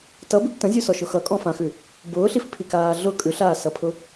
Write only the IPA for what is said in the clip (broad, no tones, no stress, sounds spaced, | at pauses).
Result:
t ʌ b ʉ ɡ t ə̃ zʲ ʉ s ɔ ʃ ʊ x ʌ kʼ ɔ̃ f ã x ʉ | b ʊː ɬ i f pʰ i k aː ɮ ʊ kʼ ʉ ɬ aː s ʌ pʰ ʊ